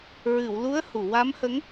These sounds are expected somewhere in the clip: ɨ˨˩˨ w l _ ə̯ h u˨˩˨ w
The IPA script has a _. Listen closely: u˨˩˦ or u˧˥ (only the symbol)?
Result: u˧˥